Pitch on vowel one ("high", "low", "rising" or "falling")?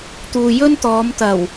low